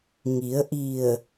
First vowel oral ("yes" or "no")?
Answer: yes